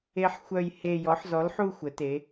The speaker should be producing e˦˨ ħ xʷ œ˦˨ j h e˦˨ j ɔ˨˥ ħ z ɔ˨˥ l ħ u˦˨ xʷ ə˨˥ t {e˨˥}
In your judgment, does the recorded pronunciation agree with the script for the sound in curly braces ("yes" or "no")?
yes